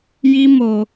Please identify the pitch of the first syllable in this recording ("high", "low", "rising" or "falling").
high